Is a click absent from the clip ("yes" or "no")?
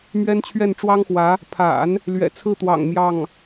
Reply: yes